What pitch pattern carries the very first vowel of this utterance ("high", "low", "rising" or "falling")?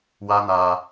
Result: high